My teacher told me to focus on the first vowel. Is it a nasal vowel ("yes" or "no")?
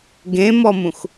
yes